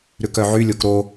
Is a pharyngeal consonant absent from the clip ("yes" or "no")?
no